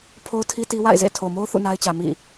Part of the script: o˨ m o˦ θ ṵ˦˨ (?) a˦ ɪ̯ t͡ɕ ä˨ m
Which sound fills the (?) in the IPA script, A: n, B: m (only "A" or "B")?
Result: A